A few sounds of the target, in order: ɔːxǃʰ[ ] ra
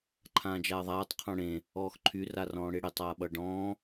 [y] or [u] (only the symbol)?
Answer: y